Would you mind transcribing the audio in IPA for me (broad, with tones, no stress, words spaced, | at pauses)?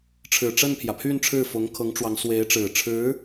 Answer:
ʈ͡ʂʰɻ̩˨˩ʈ͡ʂə˥˩npʰjä˩pʰy˥˧n ʈ͡ʂʰɻ̩˥˩fʊ˧˥ŋkʰɤ˧˥ŋʈ͡ʂwɑ˧˥ŋ swe˧˥ɪ̯ʈ͡ʂɻ̩˨˩ʈ͡ʂʰɻ̩˧˥